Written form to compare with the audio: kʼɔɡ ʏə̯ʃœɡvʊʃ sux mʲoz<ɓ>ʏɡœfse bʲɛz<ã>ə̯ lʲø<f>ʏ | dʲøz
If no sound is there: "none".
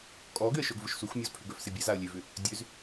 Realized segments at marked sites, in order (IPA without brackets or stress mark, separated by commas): pʰ, a, v